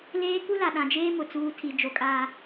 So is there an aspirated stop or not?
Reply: yes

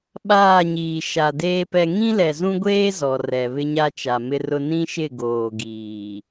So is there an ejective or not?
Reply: no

